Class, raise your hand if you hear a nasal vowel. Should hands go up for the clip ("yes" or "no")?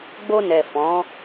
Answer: yes